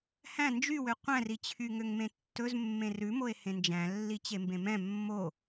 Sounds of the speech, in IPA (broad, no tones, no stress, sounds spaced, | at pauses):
h æ̃ n d͡ʒ y w ø qʷ æ̃ r i t͡ɕʰ y ŋ ø ŋ m ẽ tː ɵ z mː ẽ r ʉ m o e̯ h ẽ n d͡ʒ æ̃ lː i t͡ɕ e m b ẽ m ɛ̃ mː o